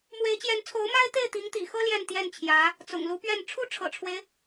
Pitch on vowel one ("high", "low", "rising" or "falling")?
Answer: rising